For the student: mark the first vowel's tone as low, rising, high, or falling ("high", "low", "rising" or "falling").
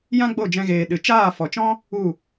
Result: high